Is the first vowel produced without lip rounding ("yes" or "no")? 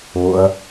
no